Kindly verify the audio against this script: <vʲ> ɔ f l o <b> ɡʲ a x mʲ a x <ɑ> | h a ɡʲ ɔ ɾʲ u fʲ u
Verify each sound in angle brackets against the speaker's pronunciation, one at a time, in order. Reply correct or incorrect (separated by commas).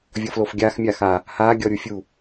correct, incorrect, incorrect